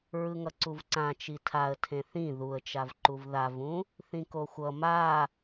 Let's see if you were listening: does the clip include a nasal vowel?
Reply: yes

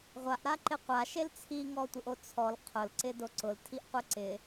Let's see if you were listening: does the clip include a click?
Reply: yes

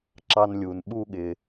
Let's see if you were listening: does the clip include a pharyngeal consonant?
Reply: no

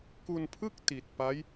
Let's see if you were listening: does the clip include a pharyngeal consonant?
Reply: no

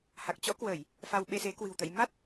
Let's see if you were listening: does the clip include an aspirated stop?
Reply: no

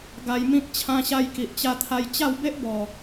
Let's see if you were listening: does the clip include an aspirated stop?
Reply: yes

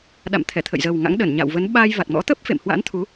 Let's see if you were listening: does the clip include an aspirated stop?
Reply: yes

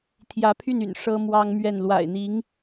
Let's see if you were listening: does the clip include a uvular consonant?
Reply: no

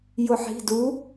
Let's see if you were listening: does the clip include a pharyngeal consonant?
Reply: yes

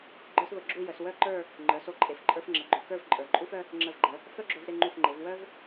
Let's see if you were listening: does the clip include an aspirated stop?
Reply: no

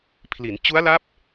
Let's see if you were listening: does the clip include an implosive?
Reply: no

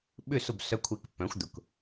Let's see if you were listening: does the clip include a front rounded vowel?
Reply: yes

